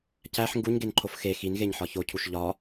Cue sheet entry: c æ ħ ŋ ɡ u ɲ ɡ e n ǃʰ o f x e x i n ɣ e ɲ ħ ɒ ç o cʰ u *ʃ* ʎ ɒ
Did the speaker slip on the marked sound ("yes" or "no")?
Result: no